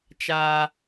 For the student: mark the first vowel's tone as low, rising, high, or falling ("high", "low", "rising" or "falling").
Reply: high